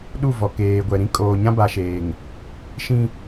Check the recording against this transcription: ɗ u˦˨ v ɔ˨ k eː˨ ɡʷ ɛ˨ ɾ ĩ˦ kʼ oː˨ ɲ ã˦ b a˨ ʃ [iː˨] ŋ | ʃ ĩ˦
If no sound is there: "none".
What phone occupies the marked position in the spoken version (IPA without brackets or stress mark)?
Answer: eː˨